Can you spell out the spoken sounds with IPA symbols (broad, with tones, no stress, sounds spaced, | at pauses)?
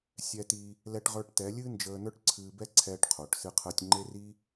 sʲ ɛ˧ t iː˧ | l ɛ˧ ʈ ʁ ə˞˧ ʈ t ɛ˨˦ lʲ ɨː˦ n d͡ʒ əː˧ n ə˞˦ ʈ ǀʰ ɨː˧ b ɛ˦ ǀʰ ɛː˧ ʈ qʰ o˨ ʈ s ɨ˧ qʰ əː˧ tʲ ŋ͡ǃ e˦ r i˦